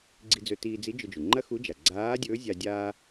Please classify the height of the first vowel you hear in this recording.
high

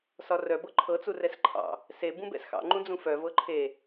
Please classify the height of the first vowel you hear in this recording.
low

